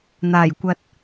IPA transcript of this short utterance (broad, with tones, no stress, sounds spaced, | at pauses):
n̪ aː˨˩ j kʷ ɐ˨ t̚